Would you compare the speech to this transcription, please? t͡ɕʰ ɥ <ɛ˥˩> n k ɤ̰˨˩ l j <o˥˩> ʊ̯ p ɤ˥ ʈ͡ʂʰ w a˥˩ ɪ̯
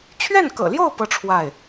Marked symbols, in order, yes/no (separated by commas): yes, yes